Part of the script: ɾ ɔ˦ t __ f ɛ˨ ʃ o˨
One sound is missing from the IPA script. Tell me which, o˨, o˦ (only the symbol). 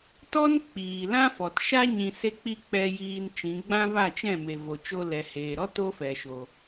o˦